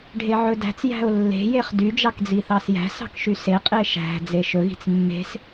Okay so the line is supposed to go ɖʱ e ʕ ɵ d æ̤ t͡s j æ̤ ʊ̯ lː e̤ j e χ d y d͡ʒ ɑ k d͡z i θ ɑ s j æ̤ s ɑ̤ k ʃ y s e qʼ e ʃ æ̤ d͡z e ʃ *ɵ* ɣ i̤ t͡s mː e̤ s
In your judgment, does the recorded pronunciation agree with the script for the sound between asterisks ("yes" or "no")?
yes